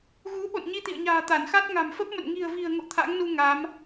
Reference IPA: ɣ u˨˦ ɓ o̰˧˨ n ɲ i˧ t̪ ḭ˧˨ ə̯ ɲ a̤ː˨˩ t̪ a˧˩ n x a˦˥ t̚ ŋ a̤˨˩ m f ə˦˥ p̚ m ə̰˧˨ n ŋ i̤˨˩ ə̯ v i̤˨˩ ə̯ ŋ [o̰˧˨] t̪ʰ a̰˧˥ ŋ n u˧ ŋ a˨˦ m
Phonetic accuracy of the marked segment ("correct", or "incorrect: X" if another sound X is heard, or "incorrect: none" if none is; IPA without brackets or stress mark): correct